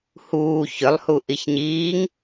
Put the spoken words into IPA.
h uː ç ʏ lˠ h u ʔ i ç ɲ iː ŋ

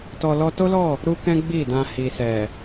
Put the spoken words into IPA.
t ɔ˧ l ɔ˦ t o˦ l ɔ˦˨ | ɾ u˦ k ɛ̃˦ ɡ͡b i˦˨ d ã˧ h i˨ s ɛ˨

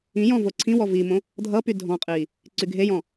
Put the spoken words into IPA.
ĩ j ɔ̃ v o ǀʰ ĩ w ɔ v i m õ | dʱ ʌ p y dʱ ɔ̃ qʼ i | ǀ y ɡʱ e j ɔ̃

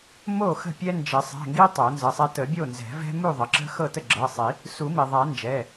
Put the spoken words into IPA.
m o˥˩ x ə̤˥˩ pʲ ɛ˦ n d͡ʒ ə˨˩˦ sˤ ɛ̤˩˧˩ ŋ ɡ i˦ tˤ o˨˩˦ n z ə˩˧˩ sˤ ɛ˦ t ə˨˩˦ bʲ o˥˩ n z ɛ̤˨˩˦ v ɛ̤˦ m u˥˩ ðˤ ə˩ ǁ ə̤˦ x ɤ˥˩ t ə˥˩ ɡ͡ǁ ɤ˩˧˩ sˤ i˨˩˦ | s u˨˩˦ m i˩ ðˤ a˨˩˦ n d͡ʒ ɛ˩˧˩

